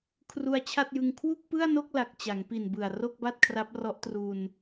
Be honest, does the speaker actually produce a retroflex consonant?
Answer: no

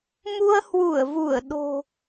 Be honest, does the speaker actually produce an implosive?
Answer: yes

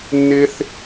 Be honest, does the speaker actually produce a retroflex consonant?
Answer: no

